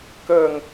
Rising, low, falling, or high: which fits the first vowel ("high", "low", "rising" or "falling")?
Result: falling